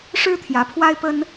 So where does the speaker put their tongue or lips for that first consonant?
retroflex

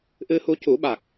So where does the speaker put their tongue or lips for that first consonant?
throat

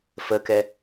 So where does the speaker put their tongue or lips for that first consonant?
lips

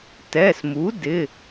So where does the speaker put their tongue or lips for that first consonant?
tongue tip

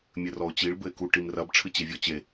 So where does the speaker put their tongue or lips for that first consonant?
lips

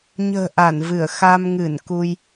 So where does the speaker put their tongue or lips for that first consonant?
palate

